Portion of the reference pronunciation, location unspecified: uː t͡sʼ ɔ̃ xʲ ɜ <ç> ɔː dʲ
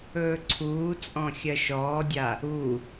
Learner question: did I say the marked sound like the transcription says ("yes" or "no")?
no